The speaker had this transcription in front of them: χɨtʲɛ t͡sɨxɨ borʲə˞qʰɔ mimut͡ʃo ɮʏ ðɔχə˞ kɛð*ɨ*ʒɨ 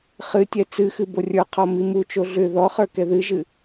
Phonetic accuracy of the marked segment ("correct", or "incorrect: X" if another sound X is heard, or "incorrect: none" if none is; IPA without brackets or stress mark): correct